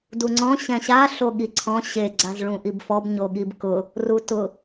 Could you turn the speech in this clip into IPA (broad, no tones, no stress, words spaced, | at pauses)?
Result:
duŋ͡ǀɔ̃ ɕɛ̃ɕa ɬoɠiǀʰɔ̃ ɕe ɡ͡ǀazɭũʔibfɔb ɲoɠibkʊ | rutʊ